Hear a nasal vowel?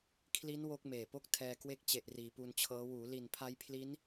no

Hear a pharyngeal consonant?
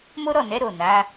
no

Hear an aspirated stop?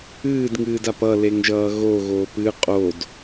no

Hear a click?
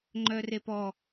yes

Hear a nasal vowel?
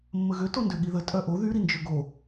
no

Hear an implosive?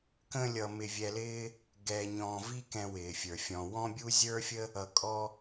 no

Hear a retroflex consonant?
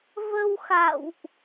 no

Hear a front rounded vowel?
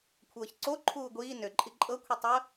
yes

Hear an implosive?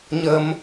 no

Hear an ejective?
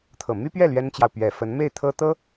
no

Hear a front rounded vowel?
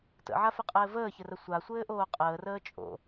no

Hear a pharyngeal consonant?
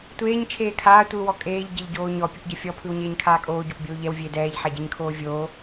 yes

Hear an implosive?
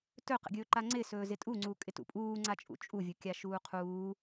no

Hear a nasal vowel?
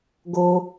no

